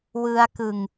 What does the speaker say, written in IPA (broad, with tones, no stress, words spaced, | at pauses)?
wɯ˦˥a̯kɯ˧ŋ